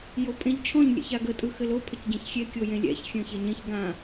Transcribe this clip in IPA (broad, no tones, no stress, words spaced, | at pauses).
jopʼẽʎt͡ʃʰɔ̃ɲ lʲɛ̰çaɡə tʼɯxɘlo pʰəcɟɛ̃çxʲe kʲojẽlʲɛ̰ç xʲœ̃çeɲẽç ɡã